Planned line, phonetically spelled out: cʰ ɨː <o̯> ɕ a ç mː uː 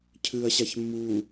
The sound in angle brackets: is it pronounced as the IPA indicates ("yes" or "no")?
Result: no